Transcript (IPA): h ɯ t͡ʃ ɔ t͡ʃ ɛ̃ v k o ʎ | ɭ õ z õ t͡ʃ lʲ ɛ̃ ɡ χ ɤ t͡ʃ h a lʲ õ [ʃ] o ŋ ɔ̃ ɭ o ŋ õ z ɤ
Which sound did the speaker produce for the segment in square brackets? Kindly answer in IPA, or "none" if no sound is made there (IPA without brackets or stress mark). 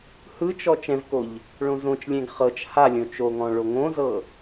t͡ʃ